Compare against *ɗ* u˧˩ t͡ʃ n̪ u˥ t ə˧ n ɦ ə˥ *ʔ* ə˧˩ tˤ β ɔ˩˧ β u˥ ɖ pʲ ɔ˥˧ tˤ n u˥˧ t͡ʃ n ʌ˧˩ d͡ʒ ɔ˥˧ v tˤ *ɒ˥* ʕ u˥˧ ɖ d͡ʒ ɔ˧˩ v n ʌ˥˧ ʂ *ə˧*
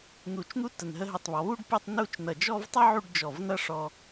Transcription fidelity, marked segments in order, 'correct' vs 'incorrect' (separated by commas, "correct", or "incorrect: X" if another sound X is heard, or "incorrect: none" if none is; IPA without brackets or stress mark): incorrect: n̪, incorrect: ɦ, incorrect: ʌ˥, incorrect: ɔ˧